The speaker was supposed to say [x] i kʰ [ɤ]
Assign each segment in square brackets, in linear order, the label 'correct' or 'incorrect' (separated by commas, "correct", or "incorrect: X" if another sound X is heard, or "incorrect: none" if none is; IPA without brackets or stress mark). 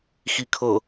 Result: correct, correct